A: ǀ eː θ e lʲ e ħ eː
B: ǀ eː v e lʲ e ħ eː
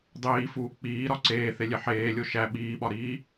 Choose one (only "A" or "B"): A